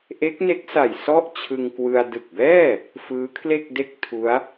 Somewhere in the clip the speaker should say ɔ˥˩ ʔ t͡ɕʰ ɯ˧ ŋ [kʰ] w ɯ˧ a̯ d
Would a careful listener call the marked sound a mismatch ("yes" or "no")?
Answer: yes